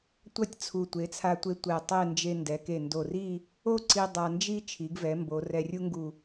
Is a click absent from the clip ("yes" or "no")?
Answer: no